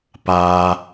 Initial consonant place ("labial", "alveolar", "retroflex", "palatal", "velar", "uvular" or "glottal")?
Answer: labial